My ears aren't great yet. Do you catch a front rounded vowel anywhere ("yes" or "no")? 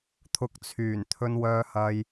yes